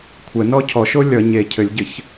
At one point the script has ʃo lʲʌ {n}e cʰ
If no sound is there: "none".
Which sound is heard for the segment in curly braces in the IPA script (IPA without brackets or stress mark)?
ɲ